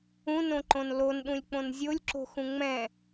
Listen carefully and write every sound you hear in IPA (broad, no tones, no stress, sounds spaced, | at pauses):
ũ n õ ǃ õ n l o n ɗ ũ lʲ k͡p õ n zʲ o lʲ ǁ o̤ x ũ ŋ͡m ɛ̃